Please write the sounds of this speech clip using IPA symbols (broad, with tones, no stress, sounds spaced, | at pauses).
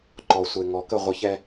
ǃ ɔ˨ sʷ e˨ ŋ ɔ˨ k ə˦˨ ʁʷ ɯ˨ ç ɛ˦